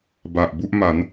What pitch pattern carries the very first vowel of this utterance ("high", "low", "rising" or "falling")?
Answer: low